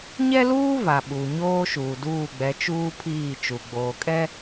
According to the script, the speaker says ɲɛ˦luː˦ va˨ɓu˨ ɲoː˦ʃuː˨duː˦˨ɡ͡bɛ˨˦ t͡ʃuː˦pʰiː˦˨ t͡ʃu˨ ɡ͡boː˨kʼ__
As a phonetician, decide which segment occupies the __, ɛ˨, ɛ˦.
ɛ˦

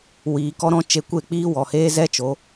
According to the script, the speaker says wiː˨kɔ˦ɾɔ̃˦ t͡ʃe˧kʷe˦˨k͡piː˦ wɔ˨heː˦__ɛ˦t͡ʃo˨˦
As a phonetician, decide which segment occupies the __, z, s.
z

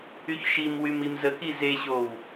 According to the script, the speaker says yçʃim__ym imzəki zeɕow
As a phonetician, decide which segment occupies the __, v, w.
w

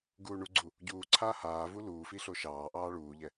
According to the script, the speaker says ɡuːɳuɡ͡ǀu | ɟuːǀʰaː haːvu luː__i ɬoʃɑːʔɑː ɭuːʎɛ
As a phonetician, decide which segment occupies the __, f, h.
f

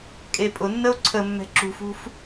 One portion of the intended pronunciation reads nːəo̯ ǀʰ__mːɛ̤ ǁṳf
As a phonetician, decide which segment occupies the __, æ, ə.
ə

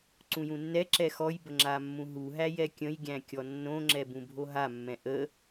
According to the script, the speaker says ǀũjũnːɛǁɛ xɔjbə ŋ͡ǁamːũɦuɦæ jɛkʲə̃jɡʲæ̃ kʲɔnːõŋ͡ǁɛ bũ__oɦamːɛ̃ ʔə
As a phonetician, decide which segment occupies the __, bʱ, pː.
bʱ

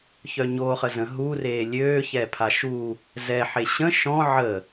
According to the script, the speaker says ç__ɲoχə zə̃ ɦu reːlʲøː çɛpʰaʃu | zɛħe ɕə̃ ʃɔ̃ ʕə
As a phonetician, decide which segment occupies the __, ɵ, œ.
œ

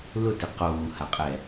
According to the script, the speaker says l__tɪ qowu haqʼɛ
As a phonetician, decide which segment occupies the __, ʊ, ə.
ʊ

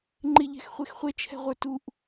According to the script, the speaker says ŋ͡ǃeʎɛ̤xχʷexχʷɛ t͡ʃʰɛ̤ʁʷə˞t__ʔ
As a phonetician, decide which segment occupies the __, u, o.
u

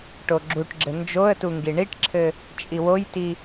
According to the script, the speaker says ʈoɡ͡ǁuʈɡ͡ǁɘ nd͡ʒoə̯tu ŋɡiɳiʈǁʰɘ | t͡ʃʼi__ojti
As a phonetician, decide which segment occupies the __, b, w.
w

